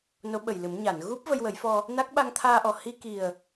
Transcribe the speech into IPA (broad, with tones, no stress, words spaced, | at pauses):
no˧˥ɓə˨˩jlɨ˨˩˦m ɲa˨˩˨n ɣu˦˥p̚ və˧jwə˨˩˦jfɔ˧ | na˦˥k̚ ɓa˧ŋt̪ʰaː˧ʔɔ˨˩ hi˧ki˨˩ə̯